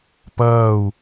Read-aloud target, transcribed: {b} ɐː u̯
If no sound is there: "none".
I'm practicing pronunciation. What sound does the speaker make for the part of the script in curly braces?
p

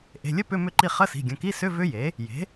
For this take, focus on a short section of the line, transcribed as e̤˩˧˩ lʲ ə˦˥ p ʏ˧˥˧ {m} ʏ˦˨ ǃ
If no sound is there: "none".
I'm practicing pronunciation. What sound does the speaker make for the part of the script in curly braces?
m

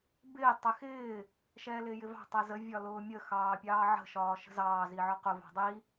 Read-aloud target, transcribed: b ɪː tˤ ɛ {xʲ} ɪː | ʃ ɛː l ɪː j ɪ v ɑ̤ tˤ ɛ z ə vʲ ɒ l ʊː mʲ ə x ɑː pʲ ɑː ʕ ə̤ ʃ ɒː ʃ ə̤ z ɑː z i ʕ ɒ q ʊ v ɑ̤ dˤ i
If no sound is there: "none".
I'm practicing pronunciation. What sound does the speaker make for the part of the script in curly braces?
x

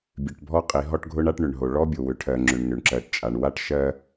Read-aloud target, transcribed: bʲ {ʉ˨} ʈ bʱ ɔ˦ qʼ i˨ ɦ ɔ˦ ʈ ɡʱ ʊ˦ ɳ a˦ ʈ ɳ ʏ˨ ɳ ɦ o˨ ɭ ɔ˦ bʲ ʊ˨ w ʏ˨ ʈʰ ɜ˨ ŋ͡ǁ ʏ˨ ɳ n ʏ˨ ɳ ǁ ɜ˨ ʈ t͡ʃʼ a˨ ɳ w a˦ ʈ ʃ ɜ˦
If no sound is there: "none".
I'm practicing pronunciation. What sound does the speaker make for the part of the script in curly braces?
ʉ˨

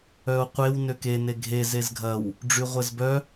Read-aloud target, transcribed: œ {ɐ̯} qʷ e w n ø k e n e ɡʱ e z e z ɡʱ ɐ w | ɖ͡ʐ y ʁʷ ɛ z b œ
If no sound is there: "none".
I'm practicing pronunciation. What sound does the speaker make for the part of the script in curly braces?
o̯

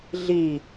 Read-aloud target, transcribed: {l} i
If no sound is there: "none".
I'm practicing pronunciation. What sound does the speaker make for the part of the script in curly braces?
ɮ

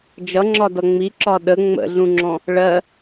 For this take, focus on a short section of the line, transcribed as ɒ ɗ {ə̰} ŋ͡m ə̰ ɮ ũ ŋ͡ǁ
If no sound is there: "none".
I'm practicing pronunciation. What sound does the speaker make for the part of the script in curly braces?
ə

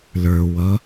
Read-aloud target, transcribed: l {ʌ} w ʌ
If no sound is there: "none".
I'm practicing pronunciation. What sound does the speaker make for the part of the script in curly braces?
ə˞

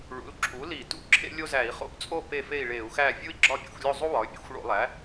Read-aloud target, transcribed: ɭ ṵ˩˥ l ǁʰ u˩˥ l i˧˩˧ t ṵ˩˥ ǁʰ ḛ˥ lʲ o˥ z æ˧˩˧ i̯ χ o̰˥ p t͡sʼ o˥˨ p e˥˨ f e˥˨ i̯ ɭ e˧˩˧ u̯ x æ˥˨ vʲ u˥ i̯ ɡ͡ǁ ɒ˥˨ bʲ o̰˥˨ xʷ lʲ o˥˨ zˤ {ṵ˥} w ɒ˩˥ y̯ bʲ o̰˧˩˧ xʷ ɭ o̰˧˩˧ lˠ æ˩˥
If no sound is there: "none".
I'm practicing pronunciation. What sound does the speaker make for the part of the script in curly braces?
u˥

